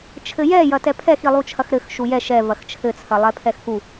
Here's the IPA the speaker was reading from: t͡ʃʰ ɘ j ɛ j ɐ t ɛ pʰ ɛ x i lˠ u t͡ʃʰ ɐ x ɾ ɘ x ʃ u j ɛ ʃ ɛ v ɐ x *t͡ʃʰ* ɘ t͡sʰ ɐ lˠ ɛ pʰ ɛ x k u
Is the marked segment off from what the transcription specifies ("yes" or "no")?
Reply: no